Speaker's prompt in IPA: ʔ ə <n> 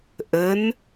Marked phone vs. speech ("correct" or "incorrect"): correct